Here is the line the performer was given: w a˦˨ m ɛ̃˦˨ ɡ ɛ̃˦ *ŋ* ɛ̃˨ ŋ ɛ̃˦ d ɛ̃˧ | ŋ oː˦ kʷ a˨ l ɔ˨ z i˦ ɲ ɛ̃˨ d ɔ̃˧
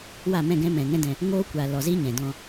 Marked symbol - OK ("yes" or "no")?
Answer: no